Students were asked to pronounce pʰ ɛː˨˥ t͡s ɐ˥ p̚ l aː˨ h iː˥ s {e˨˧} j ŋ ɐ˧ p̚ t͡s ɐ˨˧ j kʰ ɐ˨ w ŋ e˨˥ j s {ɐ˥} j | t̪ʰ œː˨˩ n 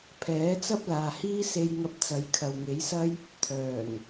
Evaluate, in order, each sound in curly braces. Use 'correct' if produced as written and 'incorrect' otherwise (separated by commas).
incorrect, correct